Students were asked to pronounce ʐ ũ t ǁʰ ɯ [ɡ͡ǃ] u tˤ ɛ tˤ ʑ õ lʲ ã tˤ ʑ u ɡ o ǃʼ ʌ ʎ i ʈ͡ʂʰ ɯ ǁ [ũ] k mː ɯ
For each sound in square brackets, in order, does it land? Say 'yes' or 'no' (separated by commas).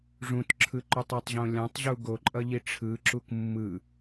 no, no